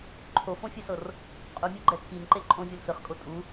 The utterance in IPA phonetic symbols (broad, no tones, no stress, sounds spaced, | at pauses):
ǃʰ o f õ fʲ ɛ s ɤ r | qʼ u mʲ u ɡ͡ǃ ɛ kʰ i n ǃ e ǃʼ õ vʲ o l s ɯ χ kʼ o tʼ u